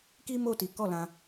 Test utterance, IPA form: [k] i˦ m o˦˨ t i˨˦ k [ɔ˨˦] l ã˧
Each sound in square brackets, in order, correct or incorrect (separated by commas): correct, incorrect